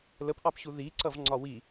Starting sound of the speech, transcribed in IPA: l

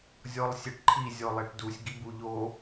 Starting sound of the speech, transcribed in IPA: zʲ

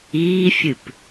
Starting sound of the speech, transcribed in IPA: iː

